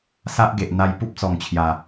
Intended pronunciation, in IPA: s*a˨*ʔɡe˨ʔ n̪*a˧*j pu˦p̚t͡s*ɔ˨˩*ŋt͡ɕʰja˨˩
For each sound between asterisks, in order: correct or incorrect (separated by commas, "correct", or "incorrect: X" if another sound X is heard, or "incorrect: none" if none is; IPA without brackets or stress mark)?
incorrect: a˦, correct, correct